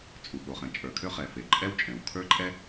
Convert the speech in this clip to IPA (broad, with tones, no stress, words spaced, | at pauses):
t͡sʼu˩ɠo˩ χɛ̃˩t͡ʃʼə˞˩kʰø˥χɛ˩ fe˩ǃʼɛ˥wt͡ʃʼɛ̃˩w kʰə˞˥ǃʼɛ˥